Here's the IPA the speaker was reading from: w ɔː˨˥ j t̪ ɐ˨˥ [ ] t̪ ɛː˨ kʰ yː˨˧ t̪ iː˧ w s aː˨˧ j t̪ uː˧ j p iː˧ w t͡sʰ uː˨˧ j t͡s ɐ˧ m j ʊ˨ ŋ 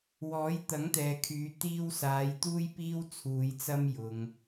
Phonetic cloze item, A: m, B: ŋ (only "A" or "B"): B